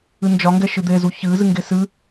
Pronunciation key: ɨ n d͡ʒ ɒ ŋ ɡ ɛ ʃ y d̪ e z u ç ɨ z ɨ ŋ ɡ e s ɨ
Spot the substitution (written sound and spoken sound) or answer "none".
y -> ɨ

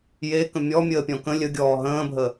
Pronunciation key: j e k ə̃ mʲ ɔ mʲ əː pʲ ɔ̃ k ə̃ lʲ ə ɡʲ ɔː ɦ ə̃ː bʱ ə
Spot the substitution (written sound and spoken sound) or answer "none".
none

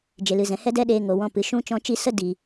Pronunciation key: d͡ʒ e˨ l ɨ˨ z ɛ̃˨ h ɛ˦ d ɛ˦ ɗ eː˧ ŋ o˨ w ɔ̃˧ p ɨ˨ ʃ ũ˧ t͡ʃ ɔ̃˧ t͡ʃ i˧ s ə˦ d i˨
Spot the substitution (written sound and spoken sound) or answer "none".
none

